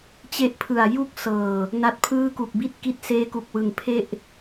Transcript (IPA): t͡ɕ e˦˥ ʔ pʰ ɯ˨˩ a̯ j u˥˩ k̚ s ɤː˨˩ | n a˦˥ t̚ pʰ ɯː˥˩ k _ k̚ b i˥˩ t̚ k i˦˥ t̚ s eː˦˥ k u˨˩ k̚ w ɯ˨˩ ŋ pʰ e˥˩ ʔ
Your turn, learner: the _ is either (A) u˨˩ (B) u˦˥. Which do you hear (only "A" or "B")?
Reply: A